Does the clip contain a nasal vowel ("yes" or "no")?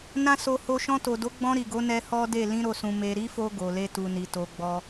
yes